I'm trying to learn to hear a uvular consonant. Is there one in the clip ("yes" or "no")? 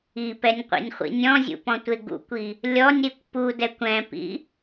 yes